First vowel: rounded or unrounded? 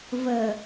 unrounded